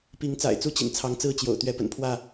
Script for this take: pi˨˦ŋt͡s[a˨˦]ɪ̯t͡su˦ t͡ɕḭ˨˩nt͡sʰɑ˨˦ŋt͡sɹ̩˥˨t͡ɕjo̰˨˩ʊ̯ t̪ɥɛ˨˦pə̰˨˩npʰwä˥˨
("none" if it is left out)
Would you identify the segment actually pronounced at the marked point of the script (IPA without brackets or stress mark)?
a̰˨˩